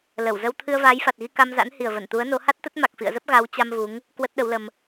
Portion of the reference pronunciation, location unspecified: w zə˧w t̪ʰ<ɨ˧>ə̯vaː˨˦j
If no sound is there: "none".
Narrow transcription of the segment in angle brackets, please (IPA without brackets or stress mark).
ɨ˧